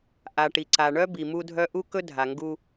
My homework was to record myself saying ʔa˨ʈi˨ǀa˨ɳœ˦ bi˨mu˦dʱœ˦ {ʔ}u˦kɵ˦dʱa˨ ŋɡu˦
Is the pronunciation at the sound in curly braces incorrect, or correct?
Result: correct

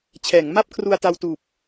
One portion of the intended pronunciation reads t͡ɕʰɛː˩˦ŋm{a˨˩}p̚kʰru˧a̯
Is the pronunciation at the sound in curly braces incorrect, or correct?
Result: incorrect: a˥˩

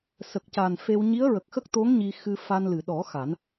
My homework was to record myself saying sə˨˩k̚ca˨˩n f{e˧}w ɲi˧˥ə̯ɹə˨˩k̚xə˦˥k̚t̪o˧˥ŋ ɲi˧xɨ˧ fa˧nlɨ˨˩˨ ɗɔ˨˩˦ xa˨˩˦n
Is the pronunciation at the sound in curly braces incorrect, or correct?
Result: correct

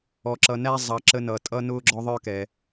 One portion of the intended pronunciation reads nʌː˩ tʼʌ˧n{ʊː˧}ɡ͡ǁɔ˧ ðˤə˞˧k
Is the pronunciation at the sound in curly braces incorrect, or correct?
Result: correct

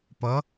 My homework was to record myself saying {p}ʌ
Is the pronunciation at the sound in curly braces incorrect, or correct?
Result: correct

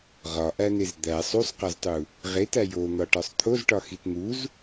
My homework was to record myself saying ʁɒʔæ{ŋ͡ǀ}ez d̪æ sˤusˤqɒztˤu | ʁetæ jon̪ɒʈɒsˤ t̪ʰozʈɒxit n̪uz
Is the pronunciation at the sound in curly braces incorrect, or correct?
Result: incorrect: n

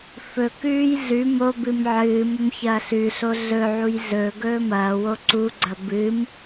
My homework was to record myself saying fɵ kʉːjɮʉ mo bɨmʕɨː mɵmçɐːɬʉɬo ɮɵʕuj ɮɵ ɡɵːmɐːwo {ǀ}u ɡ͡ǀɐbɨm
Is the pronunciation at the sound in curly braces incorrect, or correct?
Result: correct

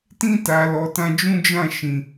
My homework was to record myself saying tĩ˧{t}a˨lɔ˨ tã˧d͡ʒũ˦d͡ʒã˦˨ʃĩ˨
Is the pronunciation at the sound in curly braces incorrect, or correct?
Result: correct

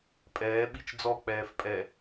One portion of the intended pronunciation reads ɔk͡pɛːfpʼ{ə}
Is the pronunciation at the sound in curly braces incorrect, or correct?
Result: incorrect: ɛ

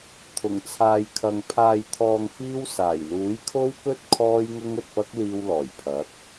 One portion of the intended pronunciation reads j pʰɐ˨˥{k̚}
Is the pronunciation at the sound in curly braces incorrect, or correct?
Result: correct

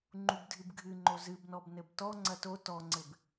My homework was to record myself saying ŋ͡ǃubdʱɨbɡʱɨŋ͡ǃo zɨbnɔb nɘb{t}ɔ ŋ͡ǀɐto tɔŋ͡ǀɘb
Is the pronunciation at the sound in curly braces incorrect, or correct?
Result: correct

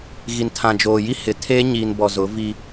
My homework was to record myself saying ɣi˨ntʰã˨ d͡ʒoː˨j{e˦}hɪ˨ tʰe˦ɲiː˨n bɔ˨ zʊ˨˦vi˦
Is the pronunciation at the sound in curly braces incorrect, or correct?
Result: incorrect: i˦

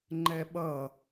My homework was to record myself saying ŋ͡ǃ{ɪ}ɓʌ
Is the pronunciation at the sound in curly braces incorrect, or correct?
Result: incorrect: ɛ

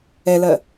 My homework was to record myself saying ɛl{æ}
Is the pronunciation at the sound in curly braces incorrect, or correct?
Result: incorrect: ɜ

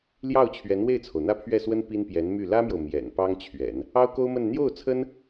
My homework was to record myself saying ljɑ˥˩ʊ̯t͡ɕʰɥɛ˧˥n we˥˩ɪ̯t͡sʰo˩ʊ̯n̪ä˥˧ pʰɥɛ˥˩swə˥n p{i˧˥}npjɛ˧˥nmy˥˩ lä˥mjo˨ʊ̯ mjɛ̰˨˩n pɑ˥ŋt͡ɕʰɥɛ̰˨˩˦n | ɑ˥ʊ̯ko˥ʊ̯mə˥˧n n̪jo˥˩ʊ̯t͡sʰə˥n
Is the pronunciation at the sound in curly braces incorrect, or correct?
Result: incorrect: i˥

